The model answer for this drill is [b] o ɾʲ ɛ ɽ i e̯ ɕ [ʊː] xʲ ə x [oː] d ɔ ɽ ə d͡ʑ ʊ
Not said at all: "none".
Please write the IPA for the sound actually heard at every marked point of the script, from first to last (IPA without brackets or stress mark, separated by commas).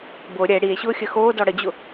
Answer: b, ʊː, oː